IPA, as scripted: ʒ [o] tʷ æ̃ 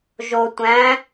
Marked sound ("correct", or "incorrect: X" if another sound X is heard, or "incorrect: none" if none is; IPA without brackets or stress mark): correct